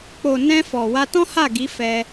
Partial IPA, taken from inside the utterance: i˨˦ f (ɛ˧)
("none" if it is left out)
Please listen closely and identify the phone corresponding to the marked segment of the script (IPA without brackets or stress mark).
ɛ˧